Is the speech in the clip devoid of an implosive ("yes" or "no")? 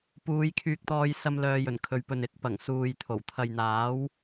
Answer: yes